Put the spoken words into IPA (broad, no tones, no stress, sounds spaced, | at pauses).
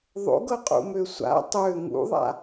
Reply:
ðˤ o̰ ɡ ɤ qʼ ṵ m ø sʷ a̰ tˤ ø ŋ ṵ ðˤ a̰